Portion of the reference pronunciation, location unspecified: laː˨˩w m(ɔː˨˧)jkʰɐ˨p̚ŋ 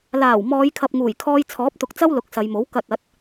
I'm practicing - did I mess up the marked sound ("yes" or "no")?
no